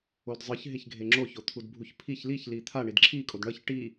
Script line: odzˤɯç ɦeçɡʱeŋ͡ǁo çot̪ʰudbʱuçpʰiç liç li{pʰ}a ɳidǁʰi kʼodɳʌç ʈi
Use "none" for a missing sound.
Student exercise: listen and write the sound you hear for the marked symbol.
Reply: t̪ʰ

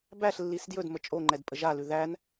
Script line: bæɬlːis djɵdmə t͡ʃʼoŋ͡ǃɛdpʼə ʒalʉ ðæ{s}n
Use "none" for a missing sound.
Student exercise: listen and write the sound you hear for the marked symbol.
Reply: none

